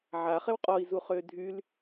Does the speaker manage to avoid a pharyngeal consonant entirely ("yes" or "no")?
no